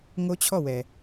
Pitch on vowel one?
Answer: high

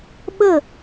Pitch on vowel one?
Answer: falling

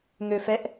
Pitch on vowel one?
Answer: low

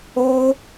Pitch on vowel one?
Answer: high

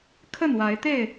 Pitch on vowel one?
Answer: falling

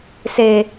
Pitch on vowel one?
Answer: low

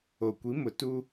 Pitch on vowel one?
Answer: low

